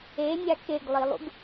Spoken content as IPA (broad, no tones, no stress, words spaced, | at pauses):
enʲa keɡlˠilˠṵɡ